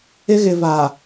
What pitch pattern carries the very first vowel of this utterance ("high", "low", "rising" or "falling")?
high